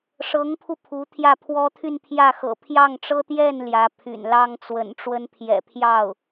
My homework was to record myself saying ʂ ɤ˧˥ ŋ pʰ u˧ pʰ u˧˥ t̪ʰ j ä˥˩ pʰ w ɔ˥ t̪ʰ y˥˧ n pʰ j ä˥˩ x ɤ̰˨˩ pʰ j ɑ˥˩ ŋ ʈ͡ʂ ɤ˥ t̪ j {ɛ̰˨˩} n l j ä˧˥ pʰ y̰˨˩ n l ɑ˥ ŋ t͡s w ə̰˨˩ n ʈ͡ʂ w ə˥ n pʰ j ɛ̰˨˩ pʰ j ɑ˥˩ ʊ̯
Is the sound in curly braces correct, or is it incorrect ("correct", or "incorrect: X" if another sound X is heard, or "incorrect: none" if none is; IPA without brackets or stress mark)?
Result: incorrect: ɛ˥˩